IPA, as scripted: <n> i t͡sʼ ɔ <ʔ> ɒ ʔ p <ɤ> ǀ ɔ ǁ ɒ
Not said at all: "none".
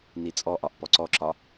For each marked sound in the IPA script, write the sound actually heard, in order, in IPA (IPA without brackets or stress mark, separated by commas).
n, ʔ, ɔ